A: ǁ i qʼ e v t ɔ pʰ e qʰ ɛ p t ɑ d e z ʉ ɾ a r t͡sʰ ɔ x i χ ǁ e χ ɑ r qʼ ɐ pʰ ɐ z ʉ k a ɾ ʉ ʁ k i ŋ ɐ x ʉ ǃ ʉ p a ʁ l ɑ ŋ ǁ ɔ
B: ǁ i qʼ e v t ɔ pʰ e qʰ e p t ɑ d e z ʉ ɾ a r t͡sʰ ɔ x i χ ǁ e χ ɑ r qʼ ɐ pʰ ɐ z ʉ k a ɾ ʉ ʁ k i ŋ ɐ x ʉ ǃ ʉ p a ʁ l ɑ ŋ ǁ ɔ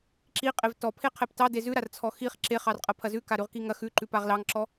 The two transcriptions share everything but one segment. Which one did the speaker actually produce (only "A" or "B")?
A